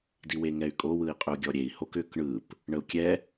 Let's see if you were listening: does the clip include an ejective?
yes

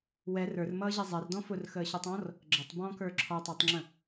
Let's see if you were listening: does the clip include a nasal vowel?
yes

